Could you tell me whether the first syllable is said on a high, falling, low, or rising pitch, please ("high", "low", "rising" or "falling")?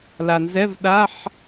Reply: low